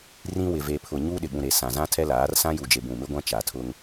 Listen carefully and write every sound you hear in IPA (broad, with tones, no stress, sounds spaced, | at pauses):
r ĩ˦ w ɪ˨ v e˨ pʰ ʊ˨ ɲ u˦ ɗ ɪ˨ ɓ ũ˨ ɾ e˨ s ã˨ z ã˦ tʰ ɛ˦ l aː˨˦ r s ã˦ j u˨ d͡ʒ e˨ b ũ˨ m ɪ˦ ɡʷ ã˦ t͡ʃ a˨ tʰ ʊ˦ ŋ